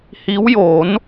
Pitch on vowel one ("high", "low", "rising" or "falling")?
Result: rising